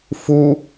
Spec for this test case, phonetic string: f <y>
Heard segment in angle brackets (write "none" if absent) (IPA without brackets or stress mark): u